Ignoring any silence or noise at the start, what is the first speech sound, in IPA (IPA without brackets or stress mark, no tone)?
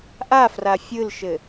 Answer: ʔ